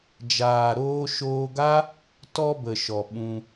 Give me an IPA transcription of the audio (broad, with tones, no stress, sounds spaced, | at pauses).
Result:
d͡ʒ aː˨ ɾ oː˧ ʃ oː˧ ɡ a˦ | t ɔ˧ b ə˨ ʃ ɔ˨ ɓ ũ˧